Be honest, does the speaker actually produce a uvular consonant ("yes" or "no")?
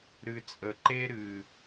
no